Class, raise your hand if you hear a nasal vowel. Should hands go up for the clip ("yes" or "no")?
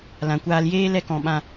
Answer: yes